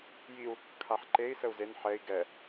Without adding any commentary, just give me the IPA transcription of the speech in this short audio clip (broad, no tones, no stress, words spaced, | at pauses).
jiu̯ | kʰaħǃei̯ səu̯zen ħɛi̯ ɡɛ